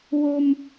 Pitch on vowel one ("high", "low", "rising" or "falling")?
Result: low